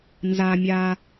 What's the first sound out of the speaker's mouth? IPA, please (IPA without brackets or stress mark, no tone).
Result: n